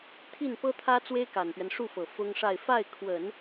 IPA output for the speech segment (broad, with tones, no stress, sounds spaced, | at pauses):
t̪ʰ i˥˩ n p ɤ˥ t̪ʰ ä˥ t͡s w e˥ ɪ̯ k a˨˩ n p ɥ ɛ˦ n ʂ u˥˩ f ɤ˨˩ f ʊ˥ ŋ ʂ a˥˧ ɪ̯ f a˥˩ ɪ̯ kʰ w ə˨˩˦ n